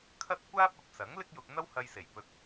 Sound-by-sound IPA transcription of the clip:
kʰ ɐ˥ t̚ kʷ aː˥ p̚ ɐ˨ p̚ s ɐ˨˥ ŋ l ɪ˥ k̚ j ʊ˧ k̚ n̪ ɐ˥ w h ɐ˧ j s e˨˩ j p ɵ˧ t̚

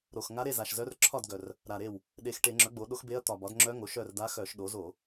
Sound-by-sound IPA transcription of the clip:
ɾ o˨˩ x ŋ a˧˥ ɾ e˥˩ z a˨˩ ʃ z œ˧˥ r ǁʰ ɒ˥˩ d ɡ œ˨˩ r | ɾ a˨˩ ɾ e˥˩ w | ɗ e˨˩ x ʈ e˧˩˧ ŋ͡ǁ œ˩˥ ɡ͡b o˩˥ ɗ o˧˥ x b e˧˥ ɐ̯ t̪ ɒ˨˩ b ɒ˩˥ d ŋ͡ǁ œ˧˥ ŋ o˩˥ ʃ œ˥˩ r d a˧˥ x œ˧˩˧ ʃ ɗ o˩˥ z o˧˩˧

